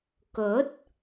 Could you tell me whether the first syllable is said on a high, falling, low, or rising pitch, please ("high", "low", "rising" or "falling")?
rising